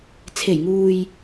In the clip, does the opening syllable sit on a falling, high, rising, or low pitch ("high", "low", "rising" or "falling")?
low